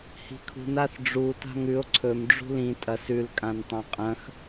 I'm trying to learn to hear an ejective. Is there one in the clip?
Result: yes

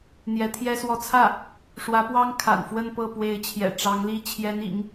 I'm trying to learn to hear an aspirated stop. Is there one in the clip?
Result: yes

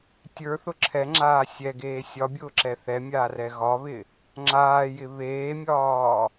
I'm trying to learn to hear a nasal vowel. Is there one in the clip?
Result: no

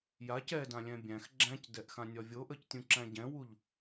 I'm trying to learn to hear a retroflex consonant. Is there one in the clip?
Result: no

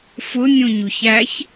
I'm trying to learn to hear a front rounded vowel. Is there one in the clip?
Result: no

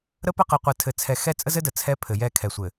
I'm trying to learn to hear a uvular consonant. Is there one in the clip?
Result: yes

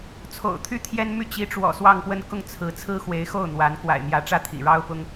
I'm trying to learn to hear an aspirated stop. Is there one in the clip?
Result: yes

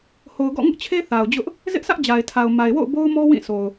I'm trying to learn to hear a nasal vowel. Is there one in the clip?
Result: yes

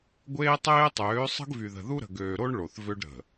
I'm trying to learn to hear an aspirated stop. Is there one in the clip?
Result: no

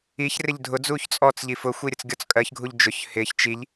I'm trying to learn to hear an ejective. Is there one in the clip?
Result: yes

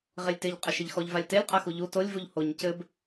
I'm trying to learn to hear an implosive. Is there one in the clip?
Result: no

